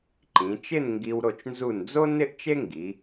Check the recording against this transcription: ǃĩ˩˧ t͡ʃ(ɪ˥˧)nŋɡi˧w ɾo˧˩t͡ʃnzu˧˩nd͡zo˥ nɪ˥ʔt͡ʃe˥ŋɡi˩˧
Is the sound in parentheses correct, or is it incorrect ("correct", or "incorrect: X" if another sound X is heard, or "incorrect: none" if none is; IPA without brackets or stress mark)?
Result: correct